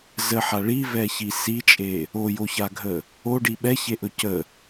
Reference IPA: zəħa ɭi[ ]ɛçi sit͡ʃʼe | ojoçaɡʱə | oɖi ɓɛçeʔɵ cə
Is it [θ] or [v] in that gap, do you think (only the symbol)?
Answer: v